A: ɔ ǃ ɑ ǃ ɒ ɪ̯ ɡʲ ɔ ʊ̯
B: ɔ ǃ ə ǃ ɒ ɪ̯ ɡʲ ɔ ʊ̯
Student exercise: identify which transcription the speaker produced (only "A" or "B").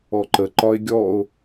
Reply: B